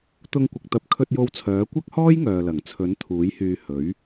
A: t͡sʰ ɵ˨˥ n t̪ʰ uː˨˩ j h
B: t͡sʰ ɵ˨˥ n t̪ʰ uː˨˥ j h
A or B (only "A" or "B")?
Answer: B